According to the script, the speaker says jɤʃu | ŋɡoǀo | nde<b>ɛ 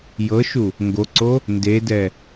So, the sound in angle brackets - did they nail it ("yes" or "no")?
no